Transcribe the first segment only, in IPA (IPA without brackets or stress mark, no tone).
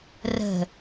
r